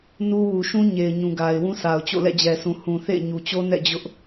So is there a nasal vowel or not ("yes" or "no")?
yes